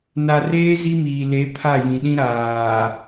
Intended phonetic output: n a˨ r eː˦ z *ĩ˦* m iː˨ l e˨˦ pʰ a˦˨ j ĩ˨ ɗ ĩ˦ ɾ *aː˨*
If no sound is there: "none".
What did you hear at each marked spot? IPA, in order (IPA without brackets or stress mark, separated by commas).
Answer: i˦, aː˨